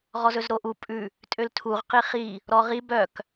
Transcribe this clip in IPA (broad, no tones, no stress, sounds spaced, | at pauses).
ʁ ɔ z ɵ z ɾ o ʔ u pʼ ʉ | tʼ ø l tʰ u ʁ q i χ i | ɾ ɔ ʁ i b œ k